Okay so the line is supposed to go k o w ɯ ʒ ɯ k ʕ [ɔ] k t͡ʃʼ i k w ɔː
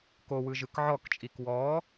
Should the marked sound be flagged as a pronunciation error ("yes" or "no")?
no